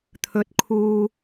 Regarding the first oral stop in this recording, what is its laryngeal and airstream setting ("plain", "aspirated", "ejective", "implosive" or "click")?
aspirated